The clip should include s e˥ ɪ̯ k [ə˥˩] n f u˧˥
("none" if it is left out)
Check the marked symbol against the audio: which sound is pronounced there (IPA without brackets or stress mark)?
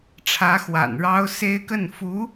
ə˥˩